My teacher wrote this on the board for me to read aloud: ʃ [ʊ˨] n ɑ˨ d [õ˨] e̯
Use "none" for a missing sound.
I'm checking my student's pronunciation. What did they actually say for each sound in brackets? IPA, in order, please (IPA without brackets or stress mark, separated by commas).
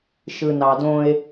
ɯ˨, õ˦